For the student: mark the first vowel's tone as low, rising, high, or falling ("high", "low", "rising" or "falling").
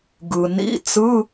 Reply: low